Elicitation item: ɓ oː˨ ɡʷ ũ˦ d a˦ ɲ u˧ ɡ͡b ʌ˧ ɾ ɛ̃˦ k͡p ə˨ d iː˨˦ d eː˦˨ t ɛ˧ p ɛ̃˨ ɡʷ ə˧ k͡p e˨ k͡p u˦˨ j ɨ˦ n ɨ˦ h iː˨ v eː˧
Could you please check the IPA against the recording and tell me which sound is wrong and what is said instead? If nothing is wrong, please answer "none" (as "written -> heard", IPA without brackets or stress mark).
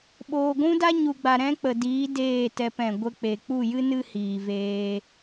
ʌ˧ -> a˧